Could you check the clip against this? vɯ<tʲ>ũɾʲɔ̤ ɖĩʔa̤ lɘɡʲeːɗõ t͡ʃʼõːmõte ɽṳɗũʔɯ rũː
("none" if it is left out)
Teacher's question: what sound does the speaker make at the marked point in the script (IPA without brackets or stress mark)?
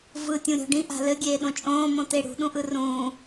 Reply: tʲ